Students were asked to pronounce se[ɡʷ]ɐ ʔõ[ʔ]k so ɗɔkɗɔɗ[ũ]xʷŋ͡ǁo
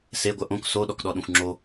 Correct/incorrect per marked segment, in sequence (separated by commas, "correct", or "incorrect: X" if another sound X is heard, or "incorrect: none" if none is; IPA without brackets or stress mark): correct, incorrect: none, correct